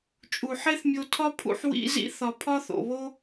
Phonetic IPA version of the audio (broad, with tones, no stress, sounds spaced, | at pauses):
t͡ʃʼ u˨ ħ e˦ θ mʲ o˧ tʰ ɒ˦ pʰ ṵ˧ ħ w ḭ˧ z ḭ˦ θ ɒ˨ pʰ ɒ˦ θ o̰˨ β o˦